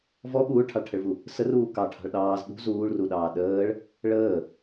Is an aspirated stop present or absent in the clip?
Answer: present